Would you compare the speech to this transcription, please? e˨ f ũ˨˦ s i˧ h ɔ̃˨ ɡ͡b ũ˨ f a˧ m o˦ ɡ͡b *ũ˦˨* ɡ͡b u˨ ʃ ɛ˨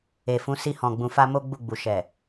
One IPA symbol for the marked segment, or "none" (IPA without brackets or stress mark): u˦˨